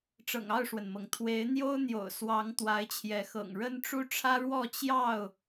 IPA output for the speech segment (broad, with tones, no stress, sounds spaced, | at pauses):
ʈ͡ʂ ɤ̰˨˩ ŋ ɑ˥˨ ʊ̯ ʂ w ə˩ n m ɤ˩ ŋ t̪ʰ w e˨˦ ɪ̯ n̪ j o˦ ʊ̯ n̪ j o̰˨˩ ʊ̯ s w ɑ˨˦ ŋ t̪ w a˨˦ ɪ̯ t͡ɕʰ j ɛ˨˦ x ɤ̰˨˩ ŋ ɻ ə˦ n ʈ͡ʂ u˦ ʈ͡ʂʰ ä˦ ɻ w ɔ˥˨ t͡ɕ j ɑ˥˨ ʊ̯